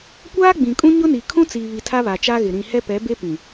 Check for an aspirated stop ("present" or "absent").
present